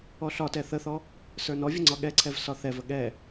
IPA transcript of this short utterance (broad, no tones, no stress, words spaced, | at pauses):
ɔɬɒtɛ θəθɔ | sə˞nɔvʲə ŋ͡ǀɒɠɛǀʰɛv sɒθɛvə ɠɛ